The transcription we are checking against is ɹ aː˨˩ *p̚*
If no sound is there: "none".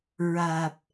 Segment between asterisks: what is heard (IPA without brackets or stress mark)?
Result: p̚